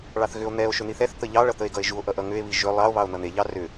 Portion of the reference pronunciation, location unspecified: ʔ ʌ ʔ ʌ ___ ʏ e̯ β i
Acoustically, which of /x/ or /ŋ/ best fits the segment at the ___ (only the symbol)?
ŋ